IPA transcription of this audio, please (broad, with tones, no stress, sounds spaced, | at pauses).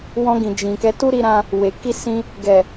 w ɔ̃˧ ɡ ĩ˨ d͡ʒ ĩ˨ k ɛ˨˦ t u˦ ɾ i˧ ɾ ã˧ | w e˨ k i˧ s ĩ˧ | ɡ ɛ˨